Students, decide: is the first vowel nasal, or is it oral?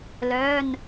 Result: oral